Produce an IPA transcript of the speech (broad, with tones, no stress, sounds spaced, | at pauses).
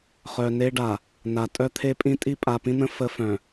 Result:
χ œ˨ n e˦ ɖ a˨ | n a˨ tʼ œ˦ t̪ʰ e˦ pʼ ĩ˦ tʼ i˦ pʼ a˨ p ĩ˦ n̪ ə̃˦ f ə˦ f œ̃˨